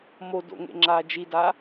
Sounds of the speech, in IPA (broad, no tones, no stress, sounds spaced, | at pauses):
m o d o̰ ŋ ḛ ŋ͡ǁ aː d͡ʒ i d a